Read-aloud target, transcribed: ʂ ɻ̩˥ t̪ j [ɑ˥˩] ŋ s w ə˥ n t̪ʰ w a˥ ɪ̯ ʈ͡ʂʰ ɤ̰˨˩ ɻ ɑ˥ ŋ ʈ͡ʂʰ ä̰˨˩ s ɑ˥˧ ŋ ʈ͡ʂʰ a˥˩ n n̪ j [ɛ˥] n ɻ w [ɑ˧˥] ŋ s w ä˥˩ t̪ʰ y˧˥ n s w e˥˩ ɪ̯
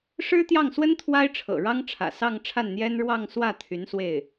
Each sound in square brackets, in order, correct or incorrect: correct, correct, incorrect: ɑ˥˧

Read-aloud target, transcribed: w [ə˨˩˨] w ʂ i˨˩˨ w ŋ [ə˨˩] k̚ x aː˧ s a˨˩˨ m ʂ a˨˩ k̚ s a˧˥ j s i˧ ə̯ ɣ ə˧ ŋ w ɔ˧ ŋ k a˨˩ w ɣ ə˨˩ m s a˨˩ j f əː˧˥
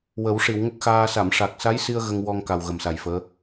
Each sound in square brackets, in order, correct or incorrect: incorrect: ə˨˩˦, incorrect: ə˦˥

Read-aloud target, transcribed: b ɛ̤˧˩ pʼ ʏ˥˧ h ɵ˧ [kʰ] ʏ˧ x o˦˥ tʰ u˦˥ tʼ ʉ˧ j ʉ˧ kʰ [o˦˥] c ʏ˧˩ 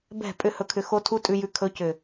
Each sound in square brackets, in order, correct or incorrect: correct, incorrect: ɵ˦˥

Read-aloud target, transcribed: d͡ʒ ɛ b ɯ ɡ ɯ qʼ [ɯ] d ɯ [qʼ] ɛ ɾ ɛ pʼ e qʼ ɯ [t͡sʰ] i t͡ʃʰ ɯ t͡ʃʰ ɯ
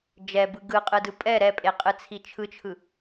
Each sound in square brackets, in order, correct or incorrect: correct, incorrect: pʼ, correct

